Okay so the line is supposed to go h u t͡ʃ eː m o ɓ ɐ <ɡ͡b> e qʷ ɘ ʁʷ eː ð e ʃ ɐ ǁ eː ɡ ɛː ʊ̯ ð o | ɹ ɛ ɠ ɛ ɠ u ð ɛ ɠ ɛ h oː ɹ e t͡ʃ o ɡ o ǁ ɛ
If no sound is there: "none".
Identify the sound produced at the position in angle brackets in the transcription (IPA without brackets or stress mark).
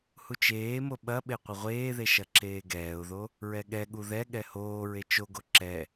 ɓ